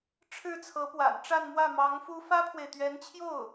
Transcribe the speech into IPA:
ʈ͡ʂʰ ɻ̩˥˩ t͡sʰ ɤ˧˥ p w a̰˨˩ n ʈ͡ʂ a˥˧ n m w ä˥˩ m ɑ˧˥ ŋ f u˥ f ä˥ pʰ w e˨ ɪ̯ t̪ ɥ ɛ˧˥ n t͡ɕʰ j o˥˩ ʊ̯

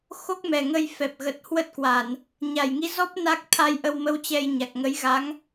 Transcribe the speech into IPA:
x o˦˥ k̚ m ɛ˨˩ ŋ ə˧ j f ɛ˨˩ p̚ ɣ ə˨˩ t̚ h w ə˦˥ t̚ k w a˧˩˨ n | ɲ a˧˩ j ŋ i˧ z ɔ˦˥ p̚ n a˦˥ k̚ t̪ʰ a˧ j ʔ ə˧ w m ə˧ w t͡ɕ ɛ˧ j ɲ a˨˩ k̚ ŋ ə˨˦ j ɣ a˨˦ ŋ

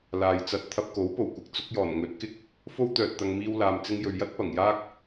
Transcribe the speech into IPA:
l aː˨ j t͡s ɐ˧ t̚ t̪ʰ ɐ˧ p̚ k o˨˥ w p o˨˩ w kʷ ɪ˨˥ k̚ t͡s ʊ˨˥ k̚ j ɔː˨˩ n ŋ ɵ˨˥ t̚ k ɪ˥ k̚ | f o˥ w t̪ œː˨ t̚ t̪ ɐ˨ ŋ m iː˧ w l aː˨ m t͡s ɪ˧ ŋ j ɵ˨ ɥ j ɐ˥ t̚ p ɐ˨˩ ŋ j aː˥ k̚

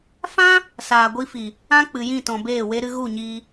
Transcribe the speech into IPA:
f ã˦ | s aː˨ ɡʷ i˧ f i˨ | ã˦ k͡p ɨ˨ j ĩ˦˨ t ɔ̃˨ b eː˦˨ w e˧ ɾ ɨ˧ ɣ u˦˨ ɲ iː˧

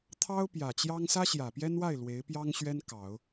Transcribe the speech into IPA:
t̪ʰ ɑ˥ ʊ̯ p j ä˨˩ t͡ɕ j ɑ˥ ŋ s ä˥ ɕ j ä˨˩ p j ɛ˥ n w a˥˩ ɪ̯ l w e˧˥ ɪ̯ p j ɑ˥ ŋ ɕ ɥ ɛ˥ n k ɑ˨˩˦ ʊ̯

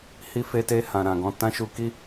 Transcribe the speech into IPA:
h i˧ f e˧ t e˧ h ã˨ ɾ ã˨ ɡ ɔ̃˧ t ã˦ ʃ u˧ k i˦

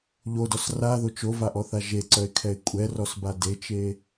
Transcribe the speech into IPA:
ʎ o d ɔ s r a ð o t͡ʃ o v a ʔ ɔ θ a ʒ e ǀ œ ɪ̯ kʰ ɛ ɪ̯ kʷʼ ɛ r ɔ s b a d e t͡ʃ e

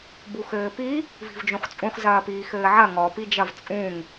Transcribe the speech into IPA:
b u x ɘː p i | v i̤ v d͡ʒ ũ χ t͡sʼ ũ χ z ɐː p iː x ɘː ʕ ɐ ŋ ɔ p i d͡ʒ ɐ v t͡sʼ ũ ŋ

